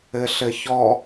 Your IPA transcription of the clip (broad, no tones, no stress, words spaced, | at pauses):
ɘɬɘçɔ